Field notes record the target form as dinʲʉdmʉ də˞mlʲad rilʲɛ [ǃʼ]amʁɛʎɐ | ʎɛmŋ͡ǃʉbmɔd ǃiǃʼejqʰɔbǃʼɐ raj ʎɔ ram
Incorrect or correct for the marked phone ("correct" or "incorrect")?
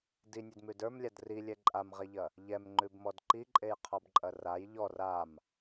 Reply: correct